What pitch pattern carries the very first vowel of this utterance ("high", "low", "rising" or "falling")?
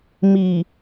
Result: low